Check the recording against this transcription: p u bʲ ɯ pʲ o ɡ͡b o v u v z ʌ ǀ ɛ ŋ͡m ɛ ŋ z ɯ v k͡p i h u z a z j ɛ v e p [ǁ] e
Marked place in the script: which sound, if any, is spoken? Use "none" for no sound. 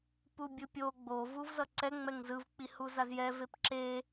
ǁ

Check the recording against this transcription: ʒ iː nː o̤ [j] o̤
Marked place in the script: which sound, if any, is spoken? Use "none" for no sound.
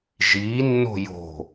j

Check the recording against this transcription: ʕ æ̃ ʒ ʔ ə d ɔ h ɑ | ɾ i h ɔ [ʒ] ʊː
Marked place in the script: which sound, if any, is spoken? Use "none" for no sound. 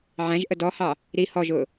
ʒ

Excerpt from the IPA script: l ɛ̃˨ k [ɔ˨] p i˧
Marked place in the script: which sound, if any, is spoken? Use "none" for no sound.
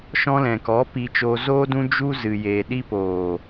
ɔ˨˦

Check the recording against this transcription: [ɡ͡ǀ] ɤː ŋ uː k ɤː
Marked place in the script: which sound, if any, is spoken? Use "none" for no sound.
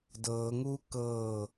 d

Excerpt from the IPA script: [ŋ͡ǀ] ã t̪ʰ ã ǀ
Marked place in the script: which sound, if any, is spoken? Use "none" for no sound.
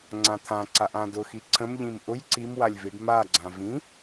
ŋ͡ǀ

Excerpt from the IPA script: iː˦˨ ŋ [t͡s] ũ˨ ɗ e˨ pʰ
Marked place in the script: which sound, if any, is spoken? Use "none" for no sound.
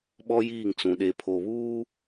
t͡s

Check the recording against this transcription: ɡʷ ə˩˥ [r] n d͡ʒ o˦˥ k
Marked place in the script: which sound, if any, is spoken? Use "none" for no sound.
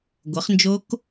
χ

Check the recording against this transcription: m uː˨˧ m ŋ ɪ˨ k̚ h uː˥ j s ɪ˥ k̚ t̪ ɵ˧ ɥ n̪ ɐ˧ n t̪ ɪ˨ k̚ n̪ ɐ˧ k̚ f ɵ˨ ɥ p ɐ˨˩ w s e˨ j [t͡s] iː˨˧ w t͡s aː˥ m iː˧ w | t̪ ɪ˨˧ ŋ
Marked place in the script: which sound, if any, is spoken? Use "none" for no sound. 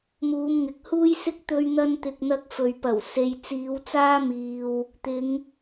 t͡s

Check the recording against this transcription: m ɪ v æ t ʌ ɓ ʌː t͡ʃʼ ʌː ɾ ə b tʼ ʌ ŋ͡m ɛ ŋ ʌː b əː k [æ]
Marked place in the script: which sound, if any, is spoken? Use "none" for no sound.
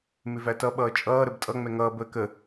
ə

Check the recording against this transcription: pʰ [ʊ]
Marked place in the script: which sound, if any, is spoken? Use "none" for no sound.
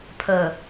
ə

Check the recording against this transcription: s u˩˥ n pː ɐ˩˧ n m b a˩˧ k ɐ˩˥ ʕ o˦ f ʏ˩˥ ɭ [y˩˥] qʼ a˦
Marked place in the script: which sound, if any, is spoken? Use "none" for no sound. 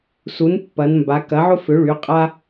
y˩˥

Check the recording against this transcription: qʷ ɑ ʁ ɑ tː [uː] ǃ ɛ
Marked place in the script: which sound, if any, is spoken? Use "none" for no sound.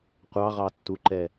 u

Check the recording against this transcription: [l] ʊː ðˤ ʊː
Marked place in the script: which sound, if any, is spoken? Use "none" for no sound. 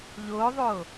ʎ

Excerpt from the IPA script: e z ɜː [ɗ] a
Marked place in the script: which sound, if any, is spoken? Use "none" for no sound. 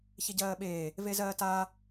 t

